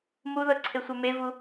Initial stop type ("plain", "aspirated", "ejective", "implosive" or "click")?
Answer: click